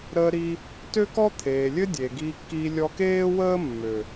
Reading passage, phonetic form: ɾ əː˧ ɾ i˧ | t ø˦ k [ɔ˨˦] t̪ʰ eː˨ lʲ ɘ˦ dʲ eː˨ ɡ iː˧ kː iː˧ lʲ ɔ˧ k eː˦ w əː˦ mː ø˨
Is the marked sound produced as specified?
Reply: no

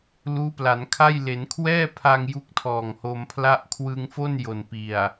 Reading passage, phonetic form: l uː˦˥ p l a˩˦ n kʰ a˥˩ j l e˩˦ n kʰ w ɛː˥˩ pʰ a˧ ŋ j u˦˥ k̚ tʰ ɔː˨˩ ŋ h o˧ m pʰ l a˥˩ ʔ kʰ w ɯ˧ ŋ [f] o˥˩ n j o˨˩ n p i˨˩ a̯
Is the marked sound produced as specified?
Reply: yes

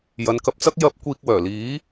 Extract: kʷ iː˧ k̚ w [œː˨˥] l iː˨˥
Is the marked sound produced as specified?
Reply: no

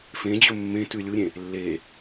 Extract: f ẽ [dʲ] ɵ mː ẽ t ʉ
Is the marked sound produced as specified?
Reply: no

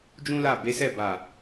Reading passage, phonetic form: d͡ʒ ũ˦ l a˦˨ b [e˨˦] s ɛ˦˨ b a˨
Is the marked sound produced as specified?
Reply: yes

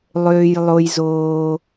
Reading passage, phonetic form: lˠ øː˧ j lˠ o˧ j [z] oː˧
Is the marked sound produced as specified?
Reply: yes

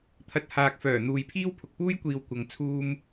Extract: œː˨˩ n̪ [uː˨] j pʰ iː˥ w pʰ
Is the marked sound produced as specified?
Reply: yes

